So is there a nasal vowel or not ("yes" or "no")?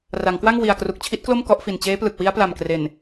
no